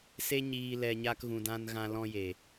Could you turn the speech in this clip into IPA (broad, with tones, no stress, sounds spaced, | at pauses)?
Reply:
s e˦ ɲ iː˧ l ɛ˧ ɲ a˦ k ɣ ũ˧ d ã˦ n ɣ ã˦ l ɔ̃˦ j e˨